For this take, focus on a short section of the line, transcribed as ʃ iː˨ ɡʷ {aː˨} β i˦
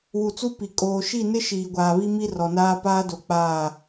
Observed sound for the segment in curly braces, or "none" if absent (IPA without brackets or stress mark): aː˨